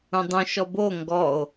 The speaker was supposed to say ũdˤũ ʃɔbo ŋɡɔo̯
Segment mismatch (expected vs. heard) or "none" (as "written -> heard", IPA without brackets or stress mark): none